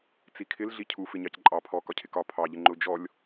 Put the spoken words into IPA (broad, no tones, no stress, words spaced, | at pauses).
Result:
t͡sikʰɪl ɮicʰu fɪɲɑcǃʼɑ pʰɔ kɒcʰɪkɒ pʰɑ ʎɪŋ͡ǃʊ d͡ʒɔlʲ